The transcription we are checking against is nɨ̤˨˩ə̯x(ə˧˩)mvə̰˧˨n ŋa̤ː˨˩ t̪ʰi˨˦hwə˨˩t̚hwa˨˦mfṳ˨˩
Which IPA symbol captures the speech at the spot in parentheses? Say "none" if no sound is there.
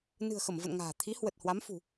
ə˧˩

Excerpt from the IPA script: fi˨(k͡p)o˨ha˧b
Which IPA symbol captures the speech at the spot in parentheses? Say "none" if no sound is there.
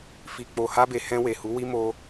k͡p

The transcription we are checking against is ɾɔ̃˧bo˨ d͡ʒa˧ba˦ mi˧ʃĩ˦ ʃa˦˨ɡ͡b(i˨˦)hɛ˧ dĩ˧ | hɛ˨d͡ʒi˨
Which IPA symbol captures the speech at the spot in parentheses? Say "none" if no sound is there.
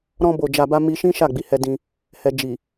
i˨˦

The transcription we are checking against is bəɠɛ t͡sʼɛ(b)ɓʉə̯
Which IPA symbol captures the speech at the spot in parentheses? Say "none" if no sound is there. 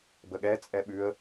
none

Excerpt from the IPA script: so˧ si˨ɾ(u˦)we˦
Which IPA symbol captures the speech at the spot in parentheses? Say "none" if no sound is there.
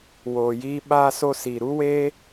u˦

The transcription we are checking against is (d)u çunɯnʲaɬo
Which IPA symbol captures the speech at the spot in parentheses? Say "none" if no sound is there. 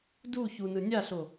d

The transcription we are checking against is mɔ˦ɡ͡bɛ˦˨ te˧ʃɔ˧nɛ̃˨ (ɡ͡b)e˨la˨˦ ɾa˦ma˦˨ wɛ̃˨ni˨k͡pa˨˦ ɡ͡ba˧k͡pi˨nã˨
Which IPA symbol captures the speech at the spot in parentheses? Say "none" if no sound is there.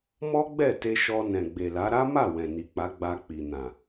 ɡ͡b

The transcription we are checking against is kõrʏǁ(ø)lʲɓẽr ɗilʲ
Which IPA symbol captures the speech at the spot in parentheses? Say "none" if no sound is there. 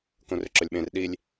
ɵ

